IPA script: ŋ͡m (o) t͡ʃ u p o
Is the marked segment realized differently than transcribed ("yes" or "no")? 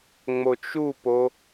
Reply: no